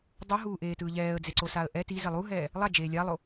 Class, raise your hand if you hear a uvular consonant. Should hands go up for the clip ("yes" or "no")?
no